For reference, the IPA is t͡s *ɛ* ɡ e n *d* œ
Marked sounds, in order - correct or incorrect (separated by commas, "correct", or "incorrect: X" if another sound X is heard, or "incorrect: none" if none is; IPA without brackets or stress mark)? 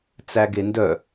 incorrect: æ, correct